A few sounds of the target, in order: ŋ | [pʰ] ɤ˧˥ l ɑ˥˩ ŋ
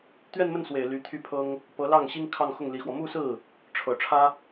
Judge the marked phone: incorrect: p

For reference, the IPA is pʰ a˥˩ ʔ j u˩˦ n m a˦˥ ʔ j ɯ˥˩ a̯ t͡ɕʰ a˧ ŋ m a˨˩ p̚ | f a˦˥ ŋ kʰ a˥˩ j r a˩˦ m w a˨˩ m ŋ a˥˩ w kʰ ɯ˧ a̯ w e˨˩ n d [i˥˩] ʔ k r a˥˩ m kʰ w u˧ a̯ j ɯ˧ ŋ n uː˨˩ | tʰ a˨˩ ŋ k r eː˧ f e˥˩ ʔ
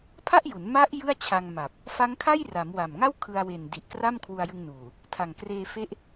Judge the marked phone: incorrect: i˨˩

